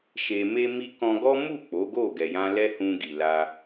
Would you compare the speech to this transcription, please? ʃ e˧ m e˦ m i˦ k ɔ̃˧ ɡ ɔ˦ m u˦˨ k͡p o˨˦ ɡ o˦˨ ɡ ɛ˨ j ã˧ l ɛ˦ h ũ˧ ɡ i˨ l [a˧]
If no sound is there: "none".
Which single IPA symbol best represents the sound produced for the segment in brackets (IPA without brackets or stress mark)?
a˧